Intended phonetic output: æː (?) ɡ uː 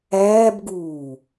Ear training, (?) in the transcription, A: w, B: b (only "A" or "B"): B